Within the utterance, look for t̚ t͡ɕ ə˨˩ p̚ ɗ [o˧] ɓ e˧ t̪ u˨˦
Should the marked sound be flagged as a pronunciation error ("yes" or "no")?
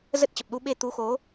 yes